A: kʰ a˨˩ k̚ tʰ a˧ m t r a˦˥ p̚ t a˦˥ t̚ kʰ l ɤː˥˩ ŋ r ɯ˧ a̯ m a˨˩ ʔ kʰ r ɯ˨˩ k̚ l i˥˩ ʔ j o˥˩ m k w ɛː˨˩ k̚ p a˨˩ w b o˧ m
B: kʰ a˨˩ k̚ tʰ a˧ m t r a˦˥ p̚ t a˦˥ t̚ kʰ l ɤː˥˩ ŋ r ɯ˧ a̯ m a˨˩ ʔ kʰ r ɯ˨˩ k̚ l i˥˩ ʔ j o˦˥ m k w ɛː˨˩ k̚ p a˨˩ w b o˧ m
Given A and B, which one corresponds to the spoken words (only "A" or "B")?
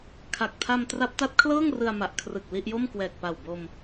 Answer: A